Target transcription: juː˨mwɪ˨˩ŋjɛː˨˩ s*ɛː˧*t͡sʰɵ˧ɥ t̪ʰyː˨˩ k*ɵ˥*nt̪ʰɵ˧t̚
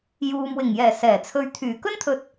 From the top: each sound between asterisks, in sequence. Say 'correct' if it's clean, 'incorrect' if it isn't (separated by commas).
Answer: incorrect, correct